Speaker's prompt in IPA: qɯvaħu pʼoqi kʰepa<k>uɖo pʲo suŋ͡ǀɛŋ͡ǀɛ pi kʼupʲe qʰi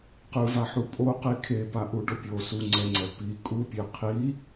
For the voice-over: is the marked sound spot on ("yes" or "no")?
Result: no